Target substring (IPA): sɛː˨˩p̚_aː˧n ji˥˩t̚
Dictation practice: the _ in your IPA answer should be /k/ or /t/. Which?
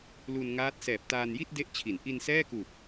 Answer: t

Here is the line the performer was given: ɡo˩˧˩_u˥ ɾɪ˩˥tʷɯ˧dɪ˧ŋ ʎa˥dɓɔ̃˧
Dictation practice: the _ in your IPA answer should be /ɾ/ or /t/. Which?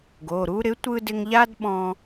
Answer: ɾ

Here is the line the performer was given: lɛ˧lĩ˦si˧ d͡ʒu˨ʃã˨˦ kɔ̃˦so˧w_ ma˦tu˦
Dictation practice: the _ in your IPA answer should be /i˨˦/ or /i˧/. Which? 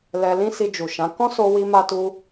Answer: i˧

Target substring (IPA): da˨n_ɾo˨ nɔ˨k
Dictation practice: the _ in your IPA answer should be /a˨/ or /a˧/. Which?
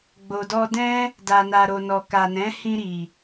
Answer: a˨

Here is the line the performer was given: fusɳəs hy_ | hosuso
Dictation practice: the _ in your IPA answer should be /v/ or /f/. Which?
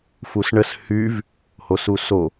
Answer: v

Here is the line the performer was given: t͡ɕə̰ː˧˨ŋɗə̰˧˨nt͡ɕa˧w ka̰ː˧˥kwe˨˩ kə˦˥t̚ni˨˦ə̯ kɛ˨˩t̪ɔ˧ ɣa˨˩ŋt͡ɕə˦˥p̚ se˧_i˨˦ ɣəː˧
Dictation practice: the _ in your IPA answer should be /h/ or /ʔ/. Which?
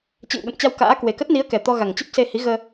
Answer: h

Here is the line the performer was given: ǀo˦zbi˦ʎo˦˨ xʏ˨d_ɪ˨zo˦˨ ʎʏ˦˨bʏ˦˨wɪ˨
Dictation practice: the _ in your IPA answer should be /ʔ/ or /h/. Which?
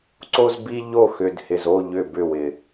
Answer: h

